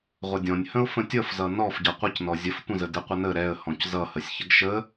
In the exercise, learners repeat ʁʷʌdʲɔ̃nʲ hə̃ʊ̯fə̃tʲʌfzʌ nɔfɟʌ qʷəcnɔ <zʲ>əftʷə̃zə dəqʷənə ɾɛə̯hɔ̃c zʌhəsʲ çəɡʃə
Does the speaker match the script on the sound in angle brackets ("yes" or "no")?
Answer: yes